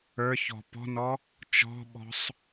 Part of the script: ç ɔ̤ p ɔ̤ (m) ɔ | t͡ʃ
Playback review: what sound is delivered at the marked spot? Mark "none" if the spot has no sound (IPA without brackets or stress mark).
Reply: n